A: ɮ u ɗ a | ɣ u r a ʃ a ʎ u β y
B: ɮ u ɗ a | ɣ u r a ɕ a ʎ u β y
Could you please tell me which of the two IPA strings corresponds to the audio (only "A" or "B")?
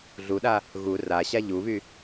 B